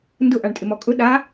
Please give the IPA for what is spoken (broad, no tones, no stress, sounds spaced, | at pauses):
n d ʊ ʔ a ɳ tʼ ɪ m ɔ kʼ ʊ ɗ a